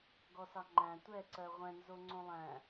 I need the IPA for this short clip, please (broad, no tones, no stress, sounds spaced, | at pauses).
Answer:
ɡ ɔ s ɑ ŋ͡ǃ æ̃ tʷ ɛ ǀ ɜ ʁʷ ɛ̃ n z o ŋ͡ǀ õ lˠ æ̃